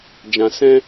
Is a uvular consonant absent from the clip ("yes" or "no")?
yes